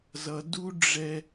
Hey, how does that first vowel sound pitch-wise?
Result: low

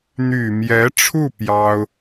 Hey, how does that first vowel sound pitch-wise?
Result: low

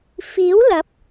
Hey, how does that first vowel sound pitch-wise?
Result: rising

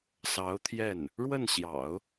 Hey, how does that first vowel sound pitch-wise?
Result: rising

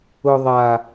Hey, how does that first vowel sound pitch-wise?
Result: high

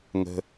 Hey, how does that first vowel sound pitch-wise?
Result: low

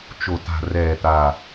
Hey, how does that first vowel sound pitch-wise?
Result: low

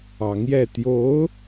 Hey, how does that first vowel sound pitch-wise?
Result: rising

